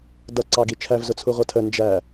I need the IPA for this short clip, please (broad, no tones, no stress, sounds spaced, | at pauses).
d ʌ ǀ ɑ ɡ i t͡ʃʰ æ v z ʊ t͡sʰ u ʁʷ ʌ tʰ ə n d͡ʒ æ